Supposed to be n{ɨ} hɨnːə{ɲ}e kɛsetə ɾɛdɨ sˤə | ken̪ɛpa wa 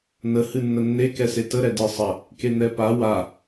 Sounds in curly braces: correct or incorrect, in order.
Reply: incorrect: ə, incorrect: nː

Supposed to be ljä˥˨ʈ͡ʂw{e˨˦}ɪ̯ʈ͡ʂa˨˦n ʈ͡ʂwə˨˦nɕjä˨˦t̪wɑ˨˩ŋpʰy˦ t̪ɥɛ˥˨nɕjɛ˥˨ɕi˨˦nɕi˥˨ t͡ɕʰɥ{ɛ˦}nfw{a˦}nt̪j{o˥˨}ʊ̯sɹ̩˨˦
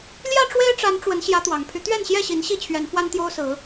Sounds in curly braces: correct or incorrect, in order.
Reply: incorrect: e˦, incorrect: ɛ˨˦, correct, incorrect: o˦

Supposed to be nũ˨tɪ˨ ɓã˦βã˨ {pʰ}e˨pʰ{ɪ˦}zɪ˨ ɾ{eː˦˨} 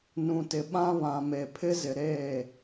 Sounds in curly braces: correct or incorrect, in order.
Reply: incorrect: m, correct, correct

